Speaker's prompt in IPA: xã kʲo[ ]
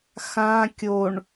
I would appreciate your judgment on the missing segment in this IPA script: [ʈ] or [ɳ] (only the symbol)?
ɳ